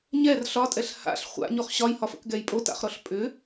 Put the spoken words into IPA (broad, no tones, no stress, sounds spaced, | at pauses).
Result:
ɲ ɛ r ɬ ɒ tʼ ɛ ɬ h a̰ ɬ χʷ a̰ ɲ o χ ɕ ɒ j h ɒ f ə̰ k ɡ ɛ j pʼ o t a̰ χ ɾ ɔ ɬ pʼ ʏ